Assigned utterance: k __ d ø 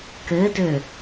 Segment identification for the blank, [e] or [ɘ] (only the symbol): ɘ